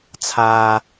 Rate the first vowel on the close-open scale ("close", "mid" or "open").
open